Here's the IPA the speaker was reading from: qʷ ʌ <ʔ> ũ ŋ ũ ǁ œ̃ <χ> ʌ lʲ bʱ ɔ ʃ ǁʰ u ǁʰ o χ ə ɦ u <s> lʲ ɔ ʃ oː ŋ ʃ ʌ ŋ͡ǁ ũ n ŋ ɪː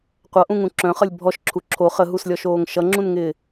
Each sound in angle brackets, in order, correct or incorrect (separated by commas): correct, correct, correct